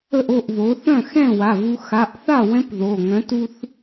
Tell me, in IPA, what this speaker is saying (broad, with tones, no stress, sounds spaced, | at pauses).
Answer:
ə˥˩ ʔ o˥˩ ʔ β o˩˥ θ œ̃˥˩ x ɛ̃˥˩ w a˩˧˩ v u˧ x a˩˧˩ ʔ θ a˥˩ w ɛ̃˧˥ p ð o˩˧˩ ŋ œ̃˩˥ t u˧ θ